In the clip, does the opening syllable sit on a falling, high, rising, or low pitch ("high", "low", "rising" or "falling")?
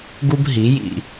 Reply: high